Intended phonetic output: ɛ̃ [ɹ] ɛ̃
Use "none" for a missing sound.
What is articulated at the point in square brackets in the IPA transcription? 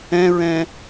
ɹ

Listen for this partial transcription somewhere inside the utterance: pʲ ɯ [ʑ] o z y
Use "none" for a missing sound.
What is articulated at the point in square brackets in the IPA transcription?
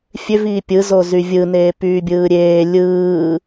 z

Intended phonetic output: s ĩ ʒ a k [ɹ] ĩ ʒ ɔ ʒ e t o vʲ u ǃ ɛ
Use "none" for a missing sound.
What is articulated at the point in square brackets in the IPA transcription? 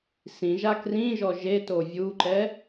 r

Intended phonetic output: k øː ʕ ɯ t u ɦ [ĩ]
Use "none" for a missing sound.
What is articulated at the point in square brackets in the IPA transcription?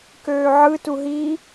i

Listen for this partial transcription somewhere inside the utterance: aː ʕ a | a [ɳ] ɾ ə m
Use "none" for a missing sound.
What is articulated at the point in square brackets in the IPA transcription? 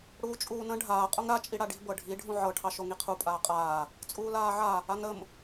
ŋ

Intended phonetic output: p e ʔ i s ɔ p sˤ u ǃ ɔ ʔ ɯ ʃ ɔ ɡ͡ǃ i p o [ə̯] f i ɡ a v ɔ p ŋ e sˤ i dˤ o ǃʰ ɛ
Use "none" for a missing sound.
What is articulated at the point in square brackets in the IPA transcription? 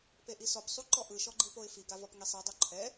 ɪ̯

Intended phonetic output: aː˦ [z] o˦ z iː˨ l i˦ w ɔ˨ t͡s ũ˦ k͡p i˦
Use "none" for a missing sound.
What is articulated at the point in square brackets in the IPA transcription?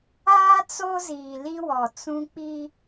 t͡s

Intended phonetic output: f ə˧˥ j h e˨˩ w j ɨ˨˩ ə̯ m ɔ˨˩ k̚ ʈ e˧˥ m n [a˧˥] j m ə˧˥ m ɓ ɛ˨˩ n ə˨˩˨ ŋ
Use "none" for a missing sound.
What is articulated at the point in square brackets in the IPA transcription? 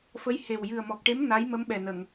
a˧˥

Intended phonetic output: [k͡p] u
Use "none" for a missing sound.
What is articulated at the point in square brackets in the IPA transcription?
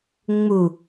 ŋ͡m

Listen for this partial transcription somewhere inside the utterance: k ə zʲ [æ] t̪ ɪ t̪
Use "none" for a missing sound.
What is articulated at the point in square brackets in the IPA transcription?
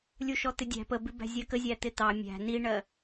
æ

